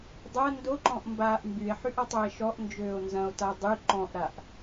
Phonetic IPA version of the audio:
dˤ ɐ n d o ǃ ɔ̃ ʔ m b aː ʔ m b y e̯ ħ y ʔ ɐ tˤ o e̯ ʃ ɔ ʔ n d͡ʒ øː o̯ n z ɐ̃ o̯ t a dˤ y ǃ ɔ̃ ʔ ɾ a ʔ

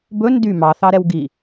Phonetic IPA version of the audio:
b ɵ n d y m ɑ θ ɑ ɾ ɛ w ɡ i

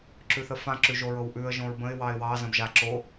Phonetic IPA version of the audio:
ǁ ʉ θ ə f ã ǁ ʉ ʒ o ɹ ɤ w ʔ ʉ ə̯ ʒ õ ɹ b ə̃ ɪ̯ w ɑ ɪ̯ w ɑ z ə̃ b ʒ a ǁ o

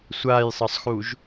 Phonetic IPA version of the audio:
sʷ aː j sˤ ɤ sˤ x u ʒ

